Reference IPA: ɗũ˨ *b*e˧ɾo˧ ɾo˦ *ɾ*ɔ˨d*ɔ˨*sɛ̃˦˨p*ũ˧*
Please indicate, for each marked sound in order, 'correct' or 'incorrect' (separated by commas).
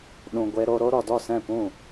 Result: incorrect, correct, incorrect, incorrect